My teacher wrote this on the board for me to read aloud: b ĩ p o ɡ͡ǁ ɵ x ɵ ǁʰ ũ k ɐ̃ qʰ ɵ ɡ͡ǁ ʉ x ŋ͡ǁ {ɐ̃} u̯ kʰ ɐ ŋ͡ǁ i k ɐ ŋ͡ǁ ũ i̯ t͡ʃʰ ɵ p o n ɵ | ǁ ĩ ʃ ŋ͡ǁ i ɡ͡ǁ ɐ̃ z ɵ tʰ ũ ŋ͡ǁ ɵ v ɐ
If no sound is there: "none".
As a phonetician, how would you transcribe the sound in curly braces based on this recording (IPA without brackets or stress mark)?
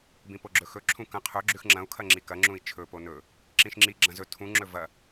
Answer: ɐ̃